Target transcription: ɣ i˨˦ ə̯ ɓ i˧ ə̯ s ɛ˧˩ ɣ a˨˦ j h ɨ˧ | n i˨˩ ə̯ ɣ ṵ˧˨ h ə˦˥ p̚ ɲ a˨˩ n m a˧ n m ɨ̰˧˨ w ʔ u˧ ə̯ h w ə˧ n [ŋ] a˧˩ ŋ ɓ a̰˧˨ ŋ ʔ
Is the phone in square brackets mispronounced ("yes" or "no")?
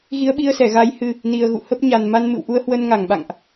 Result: no